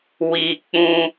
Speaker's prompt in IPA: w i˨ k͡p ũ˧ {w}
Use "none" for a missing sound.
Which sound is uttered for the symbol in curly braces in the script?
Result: none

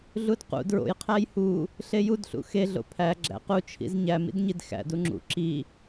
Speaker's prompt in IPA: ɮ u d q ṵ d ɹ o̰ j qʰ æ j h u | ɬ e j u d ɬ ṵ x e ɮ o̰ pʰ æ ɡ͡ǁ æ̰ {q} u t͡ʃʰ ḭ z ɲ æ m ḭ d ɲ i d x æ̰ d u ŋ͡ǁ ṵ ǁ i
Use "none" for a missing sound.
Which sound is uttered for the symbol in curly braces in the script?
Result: q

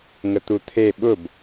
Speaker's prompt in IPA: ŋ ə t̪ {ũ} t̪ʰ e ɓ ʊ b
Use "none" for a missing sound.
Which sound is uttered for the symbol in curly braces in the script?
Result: u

